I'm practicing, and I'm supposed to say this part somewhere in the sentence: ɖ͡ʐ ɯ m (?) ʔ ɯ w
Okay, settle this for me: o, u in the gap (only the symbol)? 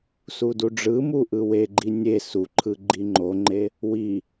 u